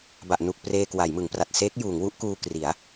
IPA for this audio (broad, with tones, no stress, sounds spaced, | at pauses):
b a˨˩ ʔ n u˨˩ k̚ p r eː˧ k w a˩˦ j m ɯ˩˦ ŋ p r a˨˩ t̚ s eː˦˥ k̚ j uː˩˦ ŋ w u˥˩ ʔ k uː˧ k r i˩˦ a̯